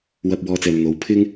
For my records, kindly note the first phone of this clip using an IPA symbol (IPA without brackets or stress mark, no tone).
w